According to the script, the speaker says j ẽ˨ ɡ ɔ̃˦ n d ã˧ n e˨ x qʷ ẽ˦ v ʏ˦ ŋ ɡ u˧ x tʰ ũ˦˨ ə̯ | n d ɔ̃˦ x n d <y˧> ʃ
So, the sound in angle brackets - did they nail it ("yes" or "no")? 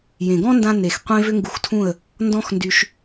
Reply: yes